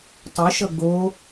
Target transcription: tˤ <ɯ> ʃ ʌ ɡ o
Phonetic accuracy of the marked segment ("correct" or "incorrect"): correct